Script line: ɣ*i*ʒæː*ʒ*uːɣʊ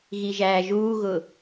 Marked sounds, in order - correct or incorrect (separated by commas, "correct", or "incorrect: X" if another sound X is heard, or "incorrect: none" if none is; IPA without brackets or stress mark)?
correct, correct